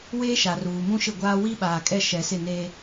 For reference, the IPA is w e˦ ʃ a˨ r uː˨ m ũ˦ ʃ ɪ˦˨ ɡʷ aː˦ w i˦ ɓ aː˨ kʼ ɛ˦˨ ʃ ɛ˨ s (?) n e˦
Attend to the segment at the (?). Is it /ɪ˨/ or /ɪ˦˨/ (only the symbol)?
ɪ˦˨